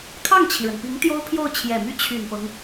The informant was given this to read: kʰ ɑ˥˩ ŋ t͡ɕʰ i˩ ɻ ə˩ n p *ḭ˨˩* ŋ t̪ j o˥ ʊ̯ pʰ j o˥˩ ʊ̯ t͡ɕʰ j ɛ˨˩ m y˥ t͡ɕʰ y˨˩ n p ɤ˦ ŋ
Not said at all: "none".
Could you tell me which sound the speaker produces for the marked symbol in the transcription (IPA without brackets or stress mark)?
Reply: i˧˥